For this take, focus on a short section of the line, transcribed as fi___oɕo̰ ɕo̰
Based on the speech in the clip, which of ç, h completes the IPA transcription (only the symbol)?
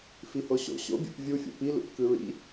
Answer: h